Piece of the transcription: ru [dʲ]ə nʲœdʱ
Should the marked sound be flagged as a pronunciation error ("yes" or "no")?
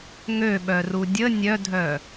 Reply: no